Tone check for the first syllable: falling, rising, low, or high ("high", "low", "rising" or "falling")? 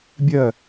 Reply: falling